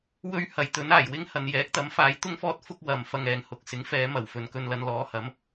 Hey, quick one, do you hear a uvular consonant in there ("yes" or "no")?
no